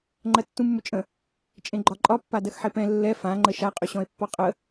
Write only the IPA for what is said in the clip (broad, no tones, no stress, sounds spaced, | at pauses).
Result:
ŋ͡ǃ ɜ tː ũ mː ʏ t͡ʃʼ ə̃ | t͡ʃʼ ẽ ɡ͡ǃ ɒ ǃʼ ɒ pː a d ɜ x ħ e p ɛ̃ lː ɛ f ã ŋ͡ǃ ə ʃ a qʼ ʏ ɕ ɔ̃ e̯ pː ɔ qʼ ə